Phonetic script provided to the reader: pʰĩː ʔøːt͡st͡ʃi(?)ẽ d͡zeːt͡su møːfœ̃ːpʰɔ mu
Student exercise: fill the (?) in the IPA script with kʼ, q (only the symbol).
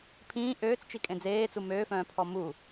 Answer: kʼ